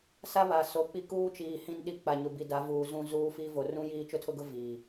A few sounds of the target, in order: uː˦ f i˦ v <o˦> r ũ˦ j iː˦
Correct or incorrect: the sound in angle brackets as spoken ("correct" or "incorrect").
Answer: incorrect